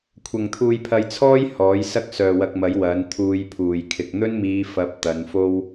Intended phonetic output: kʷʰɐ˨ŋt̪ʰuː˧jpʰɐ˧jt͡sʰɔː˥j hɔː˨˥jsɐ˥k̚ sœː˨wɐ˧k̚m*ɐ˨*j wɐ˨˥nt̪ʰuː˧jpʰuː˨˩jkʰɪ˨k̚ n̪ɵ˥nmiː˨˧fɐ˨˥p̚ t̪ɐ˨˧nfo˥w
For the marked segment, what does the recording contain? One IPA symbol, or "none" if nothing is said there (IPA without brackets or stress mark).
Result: ɐ˨˥